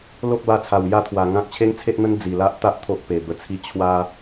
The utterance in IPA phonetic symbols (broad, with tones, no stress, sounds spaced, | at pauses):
l o˦ k̚ b a˧ t͡sʰ a˨˩ w j a˥˧ t̪ʰ w a˨˩ ŋ ã˦ k̚ t͡ɕʰ e˦ ŋ t͡sʰ e˦ ʔ n̪ ə˦ n d͡z i˨˩ l a˦ ʔ t̪ a˦ ʔ t̪ʰ o˦ ʔ p e˨˩ b ə˧ t͡sʰ i˦ t͡ɕʰ w a˦